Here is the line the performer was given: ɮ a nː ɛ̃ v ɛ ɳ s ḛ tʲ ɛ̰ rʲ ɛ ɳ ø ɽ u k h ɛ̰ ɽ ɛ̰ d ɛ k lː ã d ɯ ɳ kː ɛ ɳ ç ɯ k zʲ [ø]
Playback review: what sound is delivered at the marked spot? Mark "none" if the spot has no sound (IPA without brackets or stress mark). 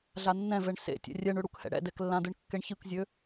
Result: ø